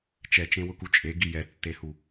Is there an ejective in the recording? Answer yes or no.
yes